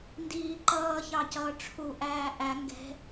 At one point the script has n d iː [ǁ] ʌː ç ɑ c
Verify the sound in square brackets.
incorrect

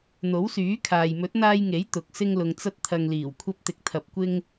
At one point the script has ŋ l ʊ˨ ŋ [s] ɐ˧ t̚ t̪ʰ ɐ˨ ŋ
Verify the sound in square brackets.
incorrect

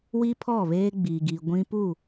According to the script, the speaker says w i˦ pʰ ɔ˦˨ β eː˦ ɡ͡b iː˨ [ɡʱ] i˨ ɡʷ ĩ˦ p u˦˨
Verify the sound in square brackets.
incorrect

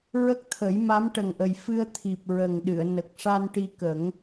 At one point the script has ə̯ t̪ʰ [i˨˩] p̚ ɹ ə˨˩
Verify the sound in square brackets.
correct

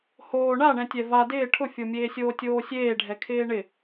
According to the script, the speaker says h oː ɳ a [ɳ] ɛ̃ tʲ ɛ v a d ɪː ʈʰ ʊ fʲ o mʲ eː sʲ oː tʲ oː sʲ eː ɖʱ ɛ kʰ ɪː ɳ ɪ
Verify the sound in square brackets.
correct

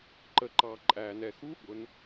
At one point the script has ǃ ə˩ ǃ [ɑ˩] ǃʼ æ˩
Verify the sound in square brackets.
correct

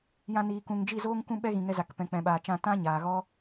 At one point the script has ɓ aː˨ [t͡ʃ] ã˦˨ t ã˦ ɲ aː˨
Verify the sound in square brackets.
correct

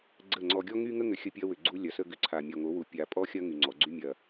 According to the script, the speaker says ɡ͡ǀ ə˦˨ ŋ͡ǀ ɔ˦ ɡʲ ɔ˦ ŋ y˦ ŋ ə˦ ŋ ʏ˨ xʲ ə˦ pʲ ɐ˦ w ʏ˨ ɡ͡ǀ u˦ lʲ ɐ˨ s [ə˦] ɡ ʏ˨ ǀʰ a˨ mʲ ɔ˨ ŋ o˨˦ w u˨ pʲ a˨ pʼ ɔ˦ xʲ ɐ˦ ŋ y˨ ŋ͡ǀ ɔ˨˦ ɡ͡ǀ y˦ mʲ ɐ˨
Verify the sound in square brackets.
correct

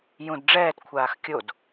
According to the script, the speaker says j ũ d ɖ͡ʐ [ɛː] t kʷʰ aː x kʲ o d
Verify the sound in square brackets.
correct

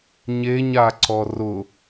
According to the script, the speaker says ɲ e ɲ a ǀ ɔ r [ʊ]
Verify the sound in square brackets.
correct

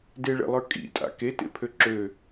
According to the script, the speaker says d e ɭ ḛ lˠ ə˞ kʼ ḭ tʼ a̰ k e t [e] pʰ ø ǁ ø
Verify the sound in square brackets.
incorrect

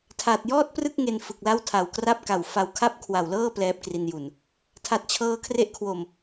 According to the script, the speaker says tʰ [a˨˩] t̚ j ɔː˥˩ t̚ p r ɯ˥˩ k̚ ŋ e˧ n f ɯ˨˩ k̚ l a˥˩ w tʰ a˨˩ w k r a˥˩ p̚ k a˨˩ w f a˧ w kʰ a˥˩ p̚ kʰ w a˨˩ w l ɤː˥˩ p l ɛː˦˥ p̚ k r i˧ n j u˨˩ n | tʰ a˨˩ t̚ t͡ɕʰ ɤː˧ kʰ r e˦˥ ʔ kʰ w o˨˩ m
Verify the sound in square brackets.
correct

